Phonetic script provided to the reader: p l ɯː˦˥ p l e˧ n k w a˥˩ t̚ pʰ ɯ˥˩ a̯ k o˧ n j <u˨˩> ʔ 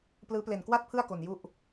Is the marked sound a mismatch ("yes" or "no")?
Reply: yes